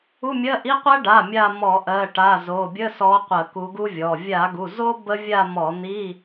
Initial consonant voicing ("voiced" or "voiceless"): voiced